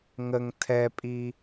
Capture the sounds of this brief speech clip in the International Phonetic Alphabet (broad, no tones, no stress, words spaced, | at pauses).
ŋəŋ tʰɛpʼi